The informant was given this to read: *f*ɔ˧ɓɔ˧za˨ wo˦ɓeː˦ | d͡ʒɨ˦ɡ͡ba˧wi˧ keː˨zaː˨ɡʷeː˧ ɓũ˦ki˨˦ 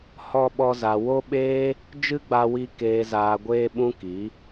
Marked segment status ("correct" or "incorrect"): incorrect